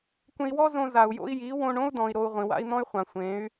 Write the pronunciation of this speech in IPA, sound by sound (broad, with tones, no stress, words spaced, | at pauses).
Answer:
kʷẽ˧i̯wɔ˦zõ˧ za˨u̯ jo̰˧i̯ji˨˦wõ˧ɳ õ˦u̯dɔ̃˨i̯ ɾo˧u̯ʁʷĩ˨wa̰˦i̯n̪ɔ̃˦y̯ χʷã˨ sʷẽ˨˦y̯